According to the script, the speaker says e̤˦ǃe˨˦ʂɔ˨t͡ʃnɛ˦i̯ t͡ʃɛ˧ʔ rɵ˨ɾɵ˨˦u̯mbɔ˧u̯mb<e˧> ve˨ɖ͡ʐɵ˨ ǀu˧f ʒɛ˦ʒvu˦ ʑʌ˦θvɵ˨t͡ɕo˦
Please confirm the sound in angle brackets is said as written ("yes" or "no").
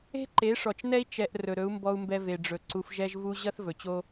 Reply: no